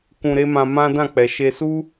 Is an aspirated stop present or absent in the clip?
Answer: absent